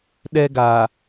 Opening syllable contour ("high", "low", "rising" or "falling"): high